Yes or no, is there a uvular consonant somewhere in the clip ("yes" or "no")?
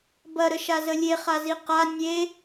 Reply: yes